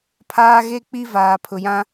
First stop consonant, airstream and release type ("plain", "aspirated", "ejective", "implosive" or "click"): aspirated